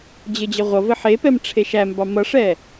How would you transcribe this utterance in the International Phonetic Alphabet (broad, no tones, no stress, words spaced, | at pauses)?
d͡ʑɘd͡ʑɘʁʷʌvɘ ħepɛm ʈ͡ʂʰeʃæmbɑ mʌʂɛ